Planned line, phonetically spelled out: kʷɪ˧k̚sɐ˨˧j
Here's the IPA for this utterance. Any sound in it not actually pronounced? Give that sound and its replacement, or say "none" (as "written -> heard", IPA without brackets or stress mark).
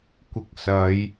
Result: none